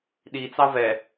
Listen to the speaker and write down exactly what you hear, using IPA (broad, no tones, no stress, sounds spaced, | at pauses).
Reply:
ɗ i t͡s ɑ v ɛ